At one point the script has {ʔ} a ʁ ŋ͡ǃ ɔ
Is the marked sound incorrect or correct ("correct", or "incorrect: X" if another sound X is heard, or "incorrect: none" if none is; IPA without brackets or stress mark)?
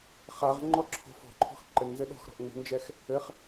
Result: incorrect: χ